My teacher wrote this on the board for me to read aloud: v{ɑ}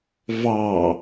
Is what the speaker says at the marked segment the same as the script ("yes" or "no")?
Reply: yes